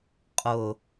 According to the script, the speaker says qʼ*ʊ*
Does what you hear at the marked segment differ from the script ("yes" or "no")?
no